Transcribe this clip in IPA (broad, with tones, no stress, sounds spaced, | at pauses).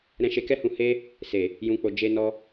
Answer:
ɾ ɛ̃˧ ʃ e˧ k ɛ˦ h ũ˧ h e˦ | s e˨ | j ũ˨ k͡p o˨ d͡ʒ e˧ n ɔ˦